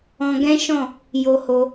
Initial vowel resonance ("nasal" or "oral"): nasal